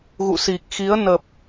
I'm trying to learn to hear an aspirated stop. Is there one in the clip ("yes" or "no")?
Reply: no